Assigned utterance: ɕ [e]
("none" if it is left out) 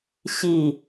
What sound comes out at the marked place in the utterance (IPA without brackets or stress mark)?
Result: i